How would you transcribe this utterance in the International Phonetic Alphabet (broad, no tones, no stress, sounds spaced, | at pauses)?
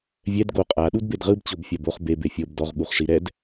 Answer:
vʲ ɛ d ɡ o qʼ a ɗ u d b e d ʁ ɯ b t͡ɕ o b fʲ a b o χ b e b e fʲ ɤ b d ɔ ʁ ɠ u χ ʂ i ɾ ɛ d